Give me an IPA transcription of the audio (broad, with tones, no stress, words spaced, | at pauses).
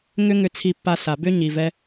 ŋʏ˦ŋʏ˧t͡sʰi˧pːa˧ sa˨bʏ˦ ɲi˨vɛ˦